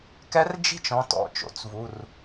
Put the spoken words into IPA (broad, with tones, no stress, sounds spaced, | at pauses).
k ɛ˧˥ r d͡ʒ i̤˥˧ t͡ʃ ɔ̃˩˧˩ t ɔ̰˩˧˩ t͡ʃ o̰˩˥ t͡s v u˩˧˩ r